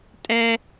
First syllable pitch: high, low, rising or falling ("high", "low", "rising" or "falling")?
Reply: high